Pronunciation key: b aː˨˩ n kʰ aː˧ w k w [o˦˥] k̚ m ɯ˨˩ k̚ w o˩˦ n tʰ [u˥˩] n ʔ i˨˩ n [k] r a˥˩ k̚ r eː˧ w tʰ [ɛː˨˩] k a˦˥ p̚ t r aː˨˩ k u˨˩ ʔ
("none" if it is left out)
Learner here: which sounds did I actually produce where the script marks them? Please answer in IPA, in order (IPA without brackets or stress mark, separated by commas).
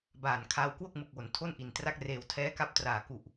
o˥˩, o˥˩, t, ɛː˦˥